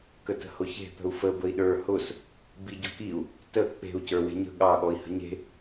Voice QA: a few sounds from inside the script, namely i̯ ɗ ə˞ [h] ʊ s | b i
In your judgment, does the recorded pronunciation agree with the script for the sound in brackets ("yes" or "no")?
yes